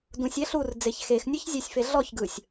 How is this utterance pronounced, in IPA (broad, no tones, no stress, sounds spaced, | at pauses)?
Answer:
d ũ sʲ ɛ ɬ u r d͡z e ç x e x nʲ ɯ ç zʲ e sʲ f e ɮ ɔ ç ɡ ɯ sʲ